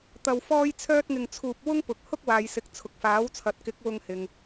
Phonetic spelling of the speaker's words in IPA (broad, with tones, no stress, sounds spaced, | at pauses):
t̪ ɐ˧ w f ɔː˥ j t͡sʰ œː˥ t̚ ŋ ɪ˧ ŋ t͡sʰ uː˧ p̚ w ʊ˥ ŋ p ʊ˨ k̚ h ʊ˥ k̚ w aː˨ j s ɪ˨ k̚ t͡sʰ ʊ˨ k̚ f aː˨˥ w t͡sʰ ɐ˨˥ t̚ k ɪ˨˥ k̚ w ʊ˧ ŋ h ɪ˨ ŋ